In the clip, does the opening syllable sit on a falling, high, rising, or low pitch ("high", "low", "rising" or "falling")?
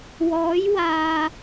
rising